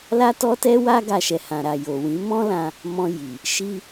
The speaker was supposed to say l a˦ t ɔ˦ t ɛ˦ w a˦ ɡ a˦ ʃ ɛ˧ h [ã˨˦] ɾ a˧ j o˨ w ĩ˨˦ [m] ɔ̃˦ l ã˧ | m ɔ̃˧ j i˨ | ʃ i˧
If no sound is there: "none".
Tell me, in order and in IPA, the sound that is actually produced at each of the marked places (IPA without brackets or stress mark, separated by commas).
ã˧, m